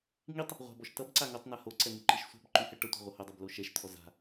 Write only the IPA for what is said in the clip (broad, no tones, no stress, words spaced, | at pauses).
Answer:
ŋitˤ | ʁʷa̤bɔʃ tʌbǀa ŋotˤna hoǀɛ n̪yǃiʃsʷa̤bǃy hɛʈʌtʷa̤ ʁʷʌhodˤib loʃɛʃt̪ʰɔ za̤